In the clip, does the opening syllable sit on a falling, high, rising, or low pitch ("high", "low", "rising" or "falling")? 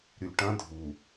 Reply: low